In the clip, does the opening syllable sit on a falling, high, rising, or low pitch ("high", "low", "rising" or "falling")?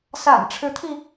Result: low